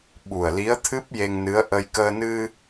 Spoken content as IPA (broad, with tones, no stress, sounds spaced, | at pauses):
ɓ u˨˩ ə̯ l i˧˥ ə̯ t̪ʰ ɨ˦˥ p̚ j e˧ ŋ n ɨ˧˥ ə̯ ʔ ə˧ j k əː˧ n ɨ˧